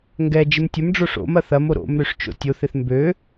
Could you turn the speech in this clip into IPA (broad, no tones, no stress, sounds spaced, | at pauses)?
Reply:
ŋ ɡ ɛ d͡ʒ ɪ m tʲ ɐ m ɖ͡ʐ o ʂ o̰ m ɐ θ ɐ m o ɾ o̰ m ɾ ø ʂ t͡ʃ o̰ tʲ o θ ɪ θ m b ø